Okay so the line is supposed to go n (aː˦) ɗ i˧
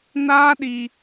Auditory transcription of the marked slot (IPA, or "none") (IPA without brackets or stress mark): aː˦